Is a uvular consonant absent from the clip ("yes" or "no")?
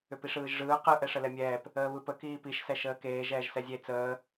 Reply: no